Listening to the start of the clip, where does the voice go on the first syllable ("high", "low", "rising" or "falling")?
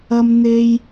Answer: high